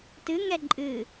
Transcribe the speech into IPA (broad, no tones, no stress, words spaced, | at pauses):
tɨŋɛ ǃʼɨ